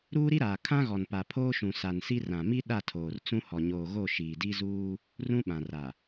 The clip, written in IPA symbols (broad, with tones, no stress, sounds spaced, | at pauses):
ɾ uː˦ ɾ i˦ ɾ aː˨ kʰ ã˦ ɣ ɔ˨ n p a˨ pʰ oː˦ ʃ ũ˨ s a˨ n s i˦ r ã˨ m i˦ ɗ a˦˨ tʰ oː˨ r t͡s ũ˦ h ɔ˨ ɲ oː˨ ɣ o˦˨ ʃ iː˨ d i˦ z uː˦ | r ũ˦ ɓ ã˨ r a˨